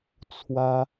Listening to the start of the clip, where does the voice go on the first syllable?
high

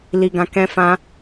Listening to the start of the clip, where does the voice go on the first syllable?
high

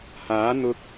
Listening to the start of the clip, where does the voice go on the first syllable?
rising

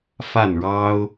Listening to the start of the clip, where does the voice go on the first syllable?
falling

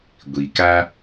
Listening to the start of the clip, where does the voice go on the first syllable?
low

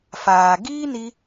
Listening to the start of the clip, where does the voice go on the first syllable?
low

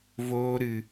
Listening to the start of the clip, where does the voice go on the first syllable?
high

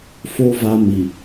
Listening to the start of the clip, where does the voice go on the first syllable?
high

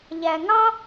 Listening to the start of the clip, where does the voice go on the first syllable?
low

